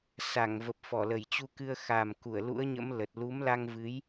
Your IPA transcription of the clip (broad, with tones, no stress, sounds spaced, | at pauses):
s a˧˩ ŋ v ə˨˩ p̚ f ɔ˧˩ l ə˧˩ j t͡ɕ u˧ k ɨ˧ ə̯ x a˨˩ m k u˧˩ ə̯ l ṵ˧˥ ə̯ ɲ ə̰˧˥ m l ə˨˩ t̚ l u˨˦ m l a˧ ŋ v ɨ˨˦ j